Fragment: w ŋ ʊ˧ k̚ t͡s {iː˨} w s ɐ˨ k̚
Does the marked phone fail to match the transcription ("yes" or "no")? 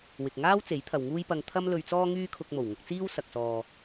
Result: yes